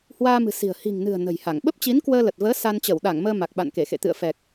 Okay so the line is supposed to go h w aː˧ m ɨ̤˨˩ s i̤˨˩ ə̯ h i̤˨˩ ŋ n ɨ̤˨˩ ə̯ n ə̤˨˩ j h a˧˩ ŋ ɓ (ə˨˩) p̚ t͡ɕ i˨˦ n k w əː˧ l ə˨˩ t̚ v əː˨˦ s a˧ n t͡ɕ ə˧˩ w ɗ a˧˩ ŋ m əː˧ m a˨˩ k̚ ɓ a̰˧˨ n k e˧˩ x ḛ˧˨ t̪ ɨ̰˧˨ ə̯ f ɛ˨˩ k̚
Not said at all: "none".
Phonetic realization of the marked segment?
ə˦˥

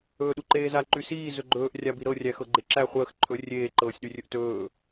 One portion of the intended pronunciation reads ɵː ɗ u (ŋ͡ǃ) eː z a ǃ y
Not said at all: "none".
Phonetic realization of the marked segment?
ǃ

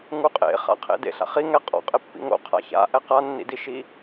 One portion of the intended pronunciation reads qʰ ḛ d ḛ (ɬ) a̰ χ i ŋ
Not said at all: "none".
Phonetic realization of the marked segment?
ɬ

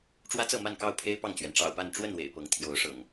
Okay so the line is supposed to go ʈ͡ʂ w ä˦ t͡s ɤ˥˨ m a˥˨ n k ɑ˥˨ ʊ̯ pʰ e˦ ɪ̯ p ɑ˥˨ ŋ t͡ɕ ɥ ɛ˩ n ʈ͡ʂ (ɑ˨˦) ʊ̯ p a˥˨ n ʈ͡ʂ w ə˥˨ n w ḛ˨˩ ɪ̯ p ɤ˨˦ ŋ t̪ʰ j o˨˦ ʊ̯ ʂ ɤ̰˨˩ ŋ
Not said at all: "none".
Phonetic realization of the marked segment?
ɑ̰˨˩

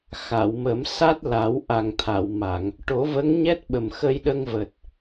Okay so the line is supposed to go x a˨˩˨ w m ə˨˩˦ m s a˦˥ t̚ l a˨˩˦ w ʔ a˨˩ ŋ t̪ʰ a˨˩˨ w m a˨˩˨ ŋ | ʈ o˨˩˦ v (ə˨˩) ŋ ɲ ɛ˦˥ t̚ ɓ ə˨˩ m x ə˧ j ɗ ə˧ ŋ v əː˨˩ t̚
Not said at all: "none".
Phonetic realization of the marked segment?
ə˧˥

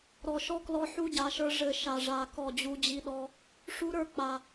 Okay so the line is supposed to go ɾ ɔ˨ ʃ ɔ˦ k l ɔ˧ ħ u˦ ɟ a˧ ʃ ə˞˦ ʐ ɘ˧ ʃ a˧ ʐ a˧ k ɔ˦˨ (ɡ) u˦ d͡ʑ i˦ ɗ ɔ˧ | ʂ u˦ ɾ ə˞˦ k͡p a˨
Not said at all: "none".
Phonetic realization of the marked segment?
d͡ʑ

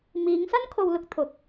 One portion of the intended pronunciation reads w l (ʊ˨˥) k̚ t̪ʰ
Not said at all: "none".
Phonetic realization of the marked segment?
ʊ˨˥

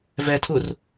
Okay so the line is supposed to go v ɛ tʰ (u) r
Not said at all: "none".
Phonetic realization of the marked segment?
u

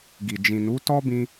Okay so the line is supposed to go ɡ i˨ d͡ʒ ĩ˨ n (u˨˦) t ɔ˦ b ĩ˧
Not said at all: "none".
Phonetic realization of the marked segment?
u˨˦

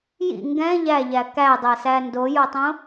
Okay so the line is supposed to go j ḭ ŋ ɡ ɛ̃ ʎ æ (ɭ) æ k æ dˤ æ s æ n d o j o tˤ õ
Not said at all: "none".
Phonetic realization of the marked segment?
ʎ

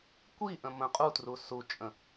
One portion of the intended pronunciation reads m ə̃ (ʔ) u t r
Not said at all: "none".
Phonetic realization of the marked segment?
qʼ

